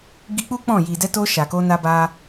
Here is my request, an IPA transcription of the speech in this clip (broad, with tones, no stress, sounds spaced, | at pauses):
ɡ i˧ k͡p u˦ k͡p ɔ̃˦˨ j i˨ d ɛ˧ t o˧ ʃ a˨ k o˧ n a˧ b a˧